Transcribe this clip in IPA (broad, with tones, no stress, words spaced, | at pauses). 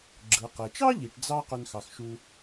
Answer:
ɡ͡ǁɯ˩qe˩t͡ʃɑ˥ʎi˩ʈ d͡zɑ˥ qø˧nxɑ˩xʃu˧